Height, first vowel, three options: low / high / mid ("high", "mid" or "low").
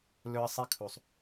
mid